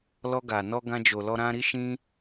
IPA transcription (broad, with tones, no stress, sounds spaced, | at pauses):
l ɔ˧ ɡ a˨ n ɔ˧ ɡ ã˧ d͡ʒ o˨ l ɔ˧ ɾ ã˧ ɾ i˧ ʃ ĩ˧